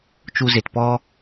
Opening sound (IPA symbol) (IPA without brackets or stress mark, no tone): t͡ʃ